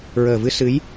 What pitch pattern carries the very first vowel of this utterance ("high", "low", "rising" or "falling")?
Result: low